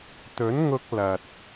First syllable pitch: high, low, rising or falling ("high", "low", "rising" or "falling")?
rising